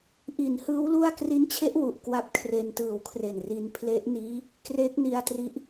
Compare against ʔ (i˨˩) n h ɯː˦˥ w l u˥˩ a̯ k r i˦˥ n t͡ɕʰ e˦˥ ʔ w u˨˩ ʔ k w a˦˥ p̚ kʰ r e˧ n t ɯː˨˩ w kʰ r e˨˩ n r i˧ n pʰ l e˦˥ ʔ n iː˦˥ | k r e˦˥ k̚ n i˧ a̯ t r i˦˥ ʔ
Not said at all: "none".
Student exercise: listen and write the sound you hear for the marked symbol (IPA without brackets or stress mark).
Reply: i˨˩